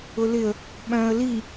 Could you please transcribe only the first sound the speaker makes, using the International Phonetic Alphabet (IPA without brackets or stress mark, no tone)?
ʊ